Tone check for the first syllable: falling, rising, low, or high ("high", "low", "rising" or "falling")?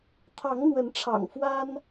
rising